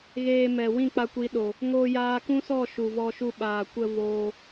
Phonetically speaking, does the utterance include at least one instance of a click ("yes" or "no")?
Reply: no